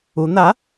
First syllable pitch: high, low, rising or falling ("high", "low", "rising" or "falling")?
rising